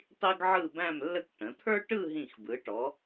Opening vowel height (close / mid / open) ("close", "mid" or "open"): close